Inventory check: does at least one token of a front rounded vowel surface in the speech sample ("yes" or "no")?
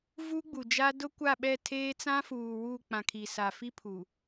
no